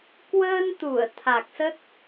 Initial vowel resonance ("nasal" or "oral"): oral